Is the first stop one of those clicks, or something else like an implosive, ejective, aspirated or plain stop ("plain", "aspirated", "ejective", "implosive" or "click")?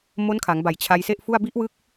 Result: aspirated